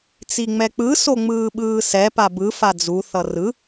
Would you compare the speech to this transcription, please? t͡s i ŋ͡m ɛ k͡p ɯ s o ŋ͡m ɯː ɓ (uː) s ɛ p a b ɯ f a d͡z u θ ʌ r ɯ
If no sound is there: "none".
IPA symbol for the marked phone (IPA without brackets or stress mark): ɯː